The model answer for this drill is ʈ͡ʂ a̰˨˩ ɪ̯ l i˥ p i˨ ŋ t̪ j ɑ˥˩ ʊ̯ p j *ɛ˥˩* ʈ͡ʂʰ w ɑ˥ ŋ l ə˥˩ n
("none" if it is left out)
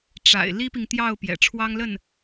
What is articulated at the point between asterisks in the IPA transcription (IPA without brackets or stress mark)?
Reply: ɛ̰˨˩